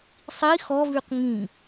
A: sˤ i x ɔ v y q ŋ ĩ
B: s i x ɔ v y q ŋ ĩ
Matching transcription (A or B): A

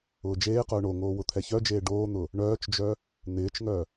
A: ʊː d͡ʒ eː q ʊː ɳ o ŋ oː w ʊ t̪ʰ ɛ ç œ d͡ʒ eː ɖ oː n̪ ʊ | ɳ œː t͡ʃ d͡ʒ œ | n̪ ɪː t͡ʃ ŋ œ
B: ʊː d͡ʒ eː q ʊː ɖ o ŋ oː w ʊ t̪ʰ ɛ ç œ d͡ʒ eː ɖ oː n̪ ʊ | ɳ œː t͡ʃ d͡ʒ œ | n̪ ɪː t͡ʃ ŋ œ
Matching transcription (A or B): A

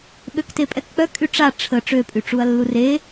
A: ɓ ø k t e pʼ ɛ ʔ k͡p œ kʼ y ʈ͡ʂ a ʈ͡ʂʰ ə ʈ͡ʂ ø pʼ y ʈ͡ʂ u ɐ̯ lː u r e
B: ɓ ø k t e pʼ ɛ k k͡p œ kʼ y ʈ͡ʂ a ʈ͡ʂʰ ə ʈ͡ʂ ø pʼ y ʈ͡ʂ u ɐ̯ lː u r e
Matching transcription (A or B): B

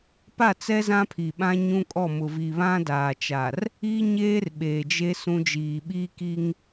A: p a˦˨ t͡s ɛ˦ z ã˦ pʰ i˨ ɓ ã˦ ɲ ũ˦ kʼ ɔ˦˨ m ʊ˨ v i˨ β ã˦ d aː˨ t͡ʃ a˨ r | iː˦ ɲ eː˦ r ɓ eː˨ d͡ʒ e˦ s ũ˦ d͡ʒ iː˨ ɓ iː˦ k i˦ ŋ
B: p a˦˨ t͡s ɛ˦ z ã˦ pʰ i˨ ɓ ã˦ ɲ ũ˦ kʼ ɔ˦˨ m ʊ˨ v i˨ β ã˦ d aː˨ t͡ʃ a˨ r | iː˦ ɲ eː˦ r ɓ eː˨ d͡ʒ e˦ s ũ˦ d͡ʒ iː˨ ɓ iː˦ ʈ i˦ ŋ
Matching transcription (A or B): A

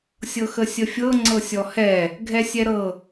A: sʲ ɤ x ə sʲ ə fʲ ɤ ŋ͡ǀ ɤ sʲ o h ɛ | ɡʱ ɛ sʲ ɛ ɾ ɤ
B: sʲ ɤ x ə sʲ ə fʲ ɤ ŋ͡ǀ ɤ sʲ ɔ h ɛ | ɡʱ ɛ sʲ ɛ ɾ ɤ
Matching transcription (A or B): B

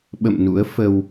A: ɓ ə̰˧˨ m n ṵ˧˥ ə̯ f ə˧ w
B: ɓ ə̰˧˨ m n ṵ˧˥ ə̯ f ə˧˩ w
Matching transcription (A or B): A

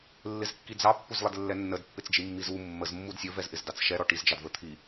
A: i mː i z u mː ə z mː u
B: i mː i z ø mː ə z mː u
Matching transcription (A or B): A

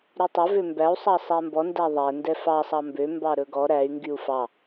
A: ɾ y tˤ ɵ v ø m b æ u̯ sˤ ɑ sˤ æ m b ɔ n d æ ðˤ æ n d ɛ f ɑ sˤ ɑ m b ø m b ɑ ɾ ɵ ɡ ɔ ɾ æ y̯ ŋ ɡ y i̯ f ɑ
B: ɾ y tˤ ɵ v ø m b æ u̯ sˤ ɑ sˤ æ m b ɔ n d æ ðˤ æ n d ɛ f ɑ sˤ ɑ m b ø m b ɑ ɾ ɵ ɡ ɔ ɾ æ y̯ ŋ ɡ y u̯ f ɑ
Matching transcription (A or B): B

